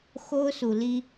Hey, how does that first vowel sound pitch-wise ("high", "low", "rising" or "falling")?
high